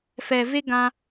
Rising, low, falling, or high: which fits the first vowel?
low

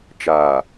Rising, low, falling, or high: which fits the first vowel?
low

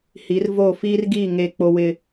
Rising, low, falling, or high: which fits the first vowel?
rising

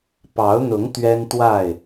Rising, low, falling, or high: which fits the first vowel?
rising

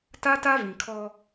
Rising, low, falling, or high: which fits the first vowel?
high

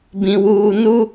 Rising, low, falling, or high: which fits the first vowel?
low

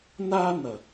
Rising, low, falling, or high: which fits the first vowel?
high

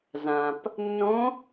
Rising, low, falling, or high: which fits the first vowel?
low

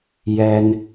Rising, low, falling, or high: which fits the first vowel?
high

